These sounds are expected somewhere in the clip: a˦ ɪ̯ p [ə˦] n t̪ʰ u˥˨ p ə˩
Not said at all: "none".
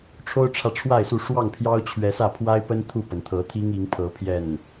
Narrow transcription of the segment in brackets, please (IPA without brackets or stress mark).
ə˦